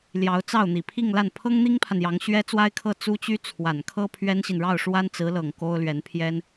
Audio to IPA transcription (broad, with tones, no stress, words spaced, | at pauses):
ljɑ˧˥ʊ̯t͡sɑ˥˩ʊ̯n̪i˨˩ pʰi˥˧ŋla˥˩n pʰɤ˥ŋn̪i˥ŋpʰa˨n jɑ˧˥ŋɕɥɛ˥ t͡swa˥ɪ̯kʰɤ˥˩ t͡su˥t͡ɕy˥ t͡sʰwa˨˩nkʰɤ˥ pʰɥɛ˥nɕi˨n ɻɑ˥˩ʊ̯ʂwa˥nt͡sɹ̩˧˥lɤ˨˩ŋ ko˥ʊ̯lɥɛ˧˥npʰjɛ˥n